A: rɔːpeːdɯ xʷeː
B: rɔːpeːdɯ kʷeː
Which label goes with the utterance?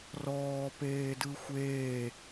A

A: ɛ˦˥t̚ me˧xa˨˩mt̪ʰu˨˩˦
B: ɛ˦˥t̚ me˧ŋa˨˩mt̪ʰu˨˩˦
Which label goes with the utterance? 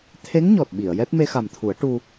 A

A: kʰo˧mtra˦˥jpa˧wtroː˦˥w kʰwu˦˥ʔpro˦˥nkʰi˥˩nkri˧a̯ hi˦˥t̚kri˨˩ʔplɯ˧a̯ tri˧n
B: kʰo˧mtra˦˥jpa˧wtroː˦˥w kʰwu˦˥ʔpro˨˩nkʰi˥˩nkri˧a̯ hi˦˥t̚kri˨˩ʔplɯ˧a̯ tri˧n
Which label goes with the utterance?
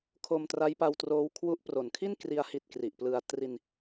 B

